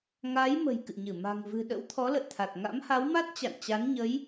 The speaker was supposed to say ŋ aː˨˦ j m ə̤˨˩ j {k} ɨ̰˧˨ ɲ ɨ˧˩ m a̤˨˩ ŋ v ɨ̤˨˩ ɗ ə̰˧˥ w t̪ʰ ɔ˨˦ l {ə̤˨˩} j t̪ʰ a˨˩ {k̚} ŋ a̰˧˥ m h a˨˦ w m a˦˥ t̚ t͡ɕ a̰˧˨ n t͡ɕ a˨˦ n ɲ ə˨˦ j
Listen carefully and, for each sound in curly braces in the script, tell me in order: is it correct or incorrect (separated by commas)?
correct, incorrect, incorrect